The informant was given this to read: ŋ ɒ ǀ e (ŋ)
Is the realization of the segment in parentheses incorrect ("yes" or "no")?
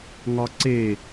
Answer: yes